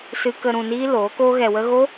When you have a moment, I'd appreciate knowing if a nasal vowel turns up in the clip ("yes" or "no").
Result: yes